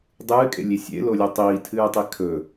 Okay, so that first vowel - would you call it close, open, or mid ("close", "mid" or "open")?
close